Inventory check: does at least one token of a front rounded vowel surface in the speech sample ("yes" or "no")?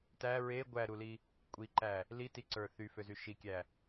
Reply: yes